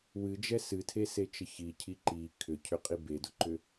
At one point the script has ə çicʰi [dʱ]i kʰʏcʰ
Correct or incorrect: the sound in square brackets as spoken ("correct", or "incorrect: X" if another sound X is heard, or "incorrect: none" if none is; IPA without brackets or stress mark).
incorrect: ǃ